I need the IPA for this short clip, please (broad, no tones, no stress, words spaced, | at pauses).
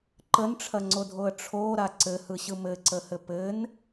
ǃənʈ͡ʂʰɐŋ͡ǀodʱoə̯ ʈ͡ʂʰoɾa ǀɘhɯɕɯ mɘǀəhɘ pɘn